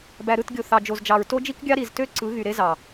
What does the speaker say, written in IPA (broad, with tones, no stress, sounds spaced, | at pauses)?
b æ˨ ɾ ɯ˦˨ t ɡʲ o˨ θ ɑ˨ d͡ʒ o˨ z d͡ʒ ɑ˨ ɹ t o˦ d͡ʒ i˦ k ɡʲ ɑ˦ ɾ i˨ z t ø˦ ǀ ɯ˨˦ ɣ y˨ ɾ e˦ z ɑ˨